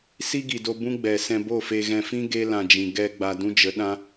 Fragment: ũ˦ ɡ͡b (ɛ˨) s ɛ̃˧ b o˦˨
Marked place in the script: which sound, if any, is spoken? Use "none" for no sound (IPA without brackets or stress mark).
ɛ˨